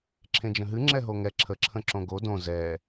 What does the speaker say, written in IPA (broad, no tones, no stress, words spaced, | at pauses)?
ǁʰẽd͡ʒə̃ɦɨ ŋ͡ǁɛɦoŋɛ ǁʰəǁʰə̃ ǁõɡo dõ zɛ